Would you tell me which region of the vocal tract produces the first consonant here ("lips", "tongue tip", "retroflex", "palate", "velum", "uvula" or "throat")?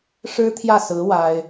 retroflex